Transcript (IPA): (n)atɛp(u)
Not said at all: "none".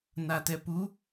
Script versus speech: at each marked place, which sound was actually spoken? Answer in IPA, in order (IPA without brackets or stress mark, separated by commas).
n, u